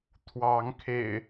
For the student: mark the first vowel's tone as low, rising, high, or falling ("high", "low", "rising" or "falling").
rising